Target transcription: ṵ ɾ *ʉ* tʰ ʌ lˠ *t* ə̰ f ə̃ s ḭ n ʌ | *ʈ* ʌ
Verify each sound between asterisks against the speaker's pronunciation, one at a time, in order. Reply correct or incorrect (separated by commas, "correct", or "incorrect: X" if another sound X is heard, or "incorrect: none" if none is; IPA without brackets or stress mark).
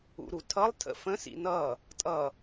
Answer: incorrect: u, incorrect: tʰ, incorrect: tʼ